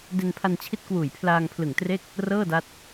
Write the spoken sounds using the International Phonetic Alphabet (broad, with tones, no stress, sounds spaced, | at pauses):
d e˧ n pʰ a˧ n t͡ɕʰ i˦˥ t̚ k w uː˨˩ j pʰ l aː˧ ŋ pʰ l ɯ˨˩ ŋ t r e˥˩ k̚ | r ɤː˥˩ d a˦˥ t̚